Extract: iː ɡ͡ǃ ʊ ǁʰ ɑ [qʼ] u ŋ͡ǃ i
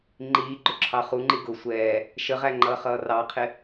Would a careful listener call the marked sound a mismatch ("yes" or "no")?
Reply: yes